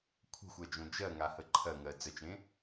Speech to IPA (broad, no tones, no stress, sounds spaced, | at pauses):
kʷʰ ə̤ xʷ ɜ d͡ʒ õ d͡ʒ ɜ ŋ a h ə ǃʰ ɜ ŋ ɜ d͡z ə t͡ʃ ẽ